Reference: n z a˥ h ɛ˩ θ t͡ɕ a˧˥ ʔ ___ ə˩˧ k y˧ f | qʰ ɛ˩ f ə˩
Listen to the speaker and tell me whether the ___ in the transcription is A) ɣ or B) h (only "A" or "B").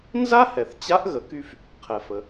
A